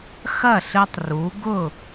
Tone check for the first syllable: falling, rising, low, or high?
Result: falling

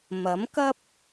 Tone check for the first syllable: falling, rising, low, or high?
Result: rising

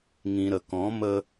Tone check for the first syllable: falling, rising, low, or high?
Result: low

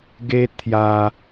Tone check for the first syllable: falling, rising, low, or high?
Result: high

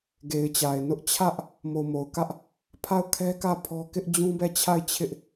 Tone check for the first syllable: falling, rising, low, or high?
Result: low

